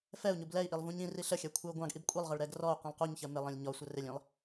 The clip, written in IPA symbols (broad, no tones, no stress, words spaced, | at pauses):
fɛu̯ɲub lɛi̯ʔilˠ vũɲĩri ɬəxʲɛ kʷʰɛu̯ɡʷɑ̃ɡʔib kʷʼilˠʁɜɭ ɾɛɡrɔu̯qĩlˠ quɲçɜ mɪlˠə̃lʲ ɲɔ sʷərɪlʲĩlˠ